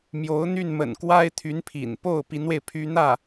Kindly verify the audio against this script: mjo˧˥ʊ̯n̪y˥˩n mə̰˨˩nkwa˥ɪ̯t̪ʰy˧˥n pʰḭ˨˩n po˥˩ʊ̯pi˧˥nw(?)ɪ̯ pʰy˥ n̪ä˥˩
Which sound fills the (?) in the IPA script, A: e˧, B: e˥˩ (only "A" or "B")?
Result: A